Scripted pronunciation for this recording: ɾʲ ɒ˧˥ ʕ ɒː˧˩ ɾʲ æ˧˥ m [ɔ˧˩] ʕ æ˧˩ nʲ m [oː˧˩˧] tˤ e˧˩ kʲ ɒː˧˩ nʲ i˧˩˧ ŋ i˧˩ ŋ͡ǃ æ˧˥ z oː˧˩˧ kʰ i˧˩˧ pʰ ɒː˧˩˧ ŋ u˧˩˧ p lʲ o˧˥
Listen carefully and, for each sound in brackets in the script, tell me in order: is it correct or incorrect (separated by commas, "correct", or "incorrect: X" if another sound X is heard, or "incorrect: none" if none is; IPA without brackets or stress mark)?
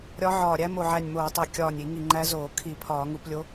incorrect: o˧˩, correct